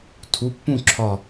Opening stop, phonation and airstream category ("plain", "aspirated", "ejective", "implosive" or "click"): aspirated